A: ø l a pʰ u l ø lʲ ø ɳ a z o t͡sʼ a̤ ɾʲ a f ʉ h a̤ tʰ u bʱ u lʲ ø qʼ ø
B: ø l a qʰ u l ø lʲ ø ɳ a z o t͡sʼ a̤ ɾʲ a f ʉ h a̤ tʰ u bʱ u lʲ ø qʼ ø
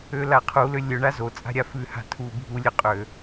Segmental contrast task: B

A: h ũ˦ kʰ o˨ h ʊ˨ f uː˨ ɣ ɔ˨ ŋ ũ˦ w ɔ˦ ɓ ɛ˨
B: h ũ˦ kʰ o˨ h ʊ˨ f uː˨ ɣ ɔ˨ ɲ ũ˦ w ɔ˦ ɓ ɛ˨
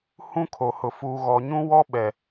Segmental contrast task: B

